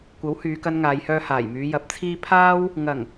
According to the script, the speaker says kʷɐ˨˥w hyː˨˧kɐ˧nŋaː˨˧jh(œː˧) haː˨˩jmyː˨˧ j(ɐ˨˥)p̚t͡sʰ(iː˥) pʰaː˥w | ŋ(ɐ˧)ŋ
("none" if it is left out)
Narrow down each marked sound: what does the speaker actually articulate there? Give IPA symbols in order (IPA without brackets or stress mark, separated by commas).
œː˧, ɐ˨˥, iː˥, ɐ˨˩